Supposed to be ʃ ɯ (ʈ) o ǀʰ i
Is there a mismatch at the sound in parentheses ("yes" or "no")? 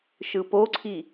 yes